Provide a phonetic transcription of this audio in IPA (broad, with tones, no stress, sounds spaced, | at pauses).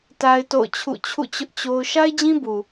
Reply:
t a˦ ɪ̯ t o̰˦˨ ʊ̯ t͡ɕʰ ṵ˦˨ t͡ɕʰ ṵ˦˨ t͡ɕ ʊ˦ ʔ t͡ɕ o˦ ʊ̯ ʃ a˦ ɪ̯ d͡ʑ ĩ˦ b u˨